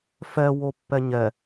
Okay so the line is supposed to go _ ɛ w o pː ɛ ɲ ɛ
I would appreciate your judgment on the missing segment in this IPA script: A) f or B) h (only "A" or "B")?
A